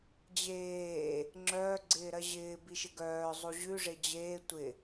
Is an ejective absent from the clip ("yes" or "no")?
yes